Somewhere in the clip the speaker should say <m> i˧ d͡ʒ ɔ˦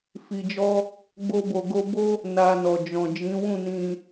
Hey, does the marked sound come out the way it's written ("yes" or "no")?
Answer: no